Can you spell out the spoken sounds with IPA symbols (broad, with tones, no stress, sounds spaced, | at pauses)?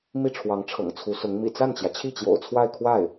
m i˥˩ ʈ͡ʂʰ w ɑ˧˥ ŋ ʈ͡ʂʰ ɤ̰˨˩ ŋ t͡sʰ u˧˥ s ʊ˧˥ ŋ m ḭ˨˩ t͡s a˥˩ n t͡ɕ j ä˩ t͡ɕʰ i˥˩ t͡ɕ j o̰˨˩ ʊ̯ t͡sʰ w a˥˧ ɪ̯ kʰ w a˥˩ ɪ̯